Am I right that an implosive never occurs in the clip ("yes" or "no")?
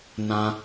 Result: yes